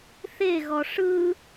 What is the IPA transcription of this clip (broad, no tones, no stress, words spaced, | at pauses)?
θeɣɔ ʂɯ